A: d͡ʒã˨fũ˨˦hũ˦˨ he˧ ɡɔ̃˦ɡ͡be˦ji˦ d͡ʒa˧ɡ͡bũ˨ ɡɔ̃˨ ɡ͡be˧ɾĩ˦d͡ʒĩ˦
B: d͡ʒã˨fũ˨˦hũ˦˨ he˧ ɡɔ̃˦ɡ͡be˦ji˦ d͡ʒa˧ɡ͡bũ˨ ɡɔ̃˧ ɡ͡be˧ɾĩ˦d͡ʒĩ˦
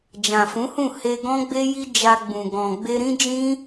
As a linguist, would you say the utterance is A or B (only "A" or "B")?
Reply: A